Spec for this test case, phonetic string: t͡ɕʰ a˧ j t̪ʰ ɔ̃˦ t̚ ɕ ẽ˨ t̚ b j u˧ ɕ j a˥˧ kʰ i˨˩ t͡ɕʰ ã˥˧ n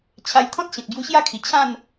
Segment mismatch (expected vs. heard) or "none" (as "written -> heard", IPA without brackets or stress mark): none